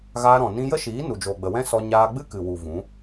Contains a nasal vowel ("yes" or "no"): yes